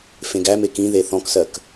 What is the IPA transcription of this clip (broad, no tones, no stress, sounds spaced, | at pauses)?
f ẽ ɡ æ m e k ĩ ð e θ ɔ̃ k s ɜ k